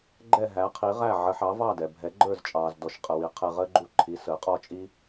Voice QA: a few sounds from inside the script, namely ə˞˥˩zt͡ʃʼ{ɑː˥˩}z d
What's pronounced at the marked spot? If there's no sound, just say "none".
ɑː˩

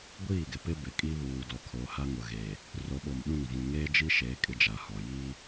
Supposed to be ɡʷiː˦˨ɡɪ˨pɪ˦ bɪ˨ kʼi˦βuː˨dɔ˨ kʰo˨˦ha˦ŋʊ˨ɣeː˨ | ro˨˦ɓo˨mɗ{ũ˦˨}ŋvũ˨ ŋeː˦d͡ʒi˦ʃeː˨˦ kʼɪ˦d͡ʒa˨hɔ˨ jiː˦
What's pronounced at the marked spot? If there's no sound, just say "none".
ũ˦˨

